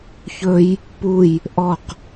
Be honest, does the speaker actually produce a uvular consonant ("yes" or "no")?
yes